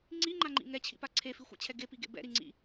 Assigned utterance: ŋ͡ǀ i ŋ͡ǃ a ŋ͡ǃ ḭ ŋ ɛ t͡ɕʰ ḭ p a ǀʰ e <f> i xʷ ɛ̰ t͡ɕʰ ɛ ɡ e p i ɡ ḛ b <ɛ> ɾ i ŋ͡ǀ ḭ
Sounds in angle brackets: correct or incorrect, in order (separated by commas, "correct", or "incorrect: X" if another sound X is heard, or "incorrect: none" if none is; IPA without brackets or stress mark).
correct, incorrect: ɛ̰